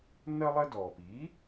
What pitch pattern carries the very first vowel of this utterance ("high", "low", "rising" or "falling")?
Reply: high